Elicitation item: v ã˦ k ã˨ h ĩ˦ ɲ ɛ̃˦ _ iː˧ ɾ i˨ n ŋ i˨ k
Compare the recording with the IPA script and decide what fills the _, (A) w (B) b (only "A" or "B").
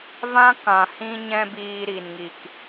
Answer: B